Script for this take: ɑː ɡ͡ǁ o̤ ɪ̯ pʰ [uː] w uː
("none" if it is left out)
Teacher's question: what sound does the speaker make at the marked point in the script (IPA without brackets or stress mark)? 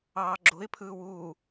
ɯː